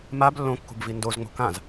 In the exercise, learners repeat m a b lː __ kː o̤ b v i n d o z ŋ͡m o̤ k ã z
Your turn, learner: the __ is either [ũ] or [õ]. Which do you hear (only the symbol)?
õ